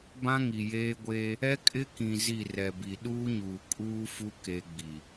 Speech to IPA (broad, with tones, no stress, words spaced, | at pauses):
bã˦ŋi˨jeː˦ɡʷeː˦ | ɛ˦ kʼɪ˦kĩ˨ zi˦˨rɛ˨bi˨ ɗuː˦ɲuː˨ kʼuː˦fu˦ ke˦ɡ͡bi˨